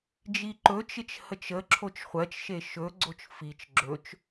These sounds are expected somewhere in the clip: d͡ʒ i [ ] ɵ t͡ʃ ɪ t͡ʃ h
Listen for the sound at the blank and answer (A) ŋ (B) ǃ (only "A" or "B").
B